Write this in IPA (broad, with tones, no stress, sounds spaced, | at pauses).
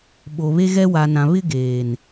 ɓ o˨ β e˦ ɣ ɛ˦ w a˨ n ã˨ β ɪ˦ ɡ eː˨ n